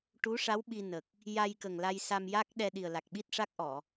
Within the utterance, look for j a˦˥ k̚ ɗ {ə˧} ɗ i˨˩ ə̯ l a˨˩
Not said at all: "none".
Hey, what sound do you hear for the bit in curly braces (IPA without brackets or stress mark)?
ɛ˧